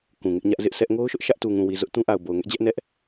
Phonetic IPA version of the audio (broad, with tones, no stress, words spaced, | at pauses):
kũ˨ŋɪ˦ʔɲä˦ʔ zɪ˦ʔsɛ˦ʔ ŋo˦ʊ̯ʃʊ˦ʔ ʃä˦ʔtu˨ŋũ˨wi˨ zʊ˦ʔ tũ˦ʔa˨ʊ̯ bo˨ʊ̯ŋɛ˦ʔd͡ʑɛ˦ʔ nɛ˦ʔ